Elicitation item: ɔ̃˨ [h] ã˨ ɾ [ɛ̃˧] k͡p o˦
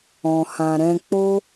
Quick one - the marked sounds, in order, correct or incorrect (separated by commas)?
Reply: correct, correct